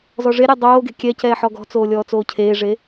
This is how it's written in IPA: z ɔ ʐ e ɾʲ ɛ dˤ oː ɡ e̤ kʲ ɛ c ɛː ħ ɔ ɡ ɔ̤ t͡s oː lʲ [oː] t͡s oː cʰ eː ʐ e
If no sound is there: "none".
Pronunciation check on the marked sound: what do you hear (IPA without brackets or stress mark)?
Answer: ɔː